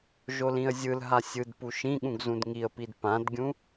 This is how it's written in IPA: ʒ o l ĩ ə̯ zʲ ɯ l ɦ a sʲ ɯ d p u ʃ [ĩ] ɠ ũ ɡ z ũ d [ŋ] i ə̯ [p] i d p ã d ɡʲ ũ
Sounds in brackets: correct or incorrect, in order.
correct, correct, correct

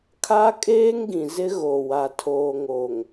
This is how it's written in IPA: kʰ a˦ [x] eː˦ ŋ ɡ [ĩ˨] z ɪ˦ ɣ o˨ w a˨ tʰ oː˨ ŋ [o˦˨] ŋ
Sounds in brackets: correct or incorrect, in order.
incorrect, correct, incorrect

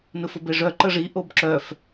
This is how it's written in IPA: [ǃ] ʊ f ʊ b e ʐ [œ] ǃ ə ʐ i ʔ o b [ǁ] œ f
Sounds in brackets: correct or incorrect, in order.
incorrect, correct, correct

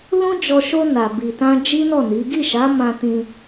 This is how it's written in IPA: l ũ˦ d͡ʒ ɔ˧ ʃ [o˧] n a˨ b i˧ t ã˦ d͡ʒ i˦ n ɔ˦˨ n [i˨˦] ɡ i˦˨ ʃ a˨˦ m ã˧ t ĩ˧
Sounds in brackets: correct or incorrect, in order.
correct, correct

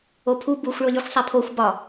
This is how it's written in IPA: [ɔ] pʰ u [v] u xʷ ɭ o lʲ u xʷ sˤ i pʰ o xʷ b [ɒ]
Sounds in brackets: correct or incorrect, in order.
incorrect, incorrect, correct

